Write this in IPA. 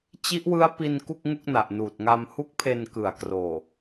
t͡ɕ i˦˥ ʔ w ɯ˦˥ a̯ p i˧ n k u˥˩ k̚ ŋ u˥˩ k̚ n a˨˩ ʔ n uː˨˩ t̚ ŋ a˧ m h u˦˥ k̚ pʰ e˧ n k ɯ˨˩ a̯ k r oː˨˩

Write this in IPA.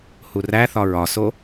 h u r æ θ ɒ ɹ ɒ s o

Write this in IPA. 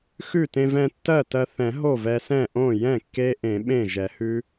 x ʉ˥˩ t ẽ˧ v ɛ̃˧ tː ɜ˥˩ t ɜ˧ θ ɛ̃˨˩˦ ɦ o˥˩ v ɛ˧ s ɛ̃˥˩ ʔ õ˥˩ j ɛ̃˥˩ kː e˦˥ ʔ ẽ˨˩˦ ɓ ẽ˥˩ ʒ ɛ˨˩˦ h ʉ˦˥

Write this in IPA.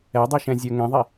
ɛ dˤ i ʃ ɛ̃ zʲ ə˞ ŋ ɛ̃ ðˤ i

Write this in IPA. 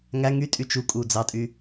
ŋ æ ŋ y tʼ y t͡ʃ u kʼ u d͡z ɑ tʼ y

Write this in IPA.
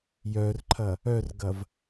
j œ r ǃʰ ɐ | œ r ɡ ɐ v

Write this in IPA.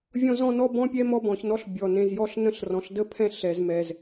vʲ ɔ̃˦ z ɔ̃˦ n ɔ˦ b ɔ̃˦ pʲ ɛ˦ m ɔ˦˨ b ɔ̃˨ ç n ɔ˦ ɬ bʲ ɔ˨ n ẽ˨ z j ɔ˦ ɬ n ə̃˦˨ ɬ r ɔ̃˨ ɬ d ə˦ pʰ ɛ̃˦˨ ɬ ɛ˨ z m ɛ˨ z

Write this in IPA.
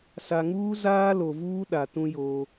s a˨ ŋ uː˦ z aː˦ l o˨ v uː˦ ɗ a˨ t ũ˦ j oː˦

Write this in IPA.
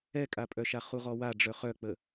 ɛ kʼ a pʼ œ ʃ a χ u ʁ ɔ w a ɖ͡ʐ œ χ œ k͡p ə

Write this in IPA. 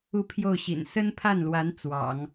u˥˧ pʰ j o˥˩ ʊ̯ ɕ ḭ˨˩ n s ə˥ n pʰ a˥˩ n l w a˧˥ n t͡s w ɑ̰˨˩˦ ŋ

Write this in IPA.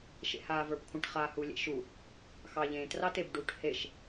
ʃ ḛ h aː v ə˞ b kʷʰ ə̃ ʈ χ aː h u lʲ ḛ ʃ u | x ɑ ʎ ẽː t r ɑ t e b ɖ u ʈ h e ʃ

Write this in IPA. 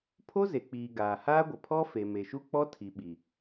pʰ o˦ z e˨ k͡p iː˨ ɡ aː˨ h aː˦ ɡʷ ɪ˨ pʰ ɔ˦ f e˨ m e˨ ʃ u˦ k͡p ɔ˦ tʰ i˨ ɓ i˨

